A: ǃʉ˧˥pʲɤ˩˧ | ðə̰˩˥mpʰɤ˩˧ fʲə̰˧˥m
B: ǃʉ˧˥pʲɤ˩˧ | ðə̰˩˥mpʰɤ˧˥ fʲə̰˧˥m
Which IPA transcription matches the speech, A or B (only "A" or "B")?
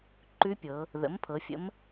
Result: A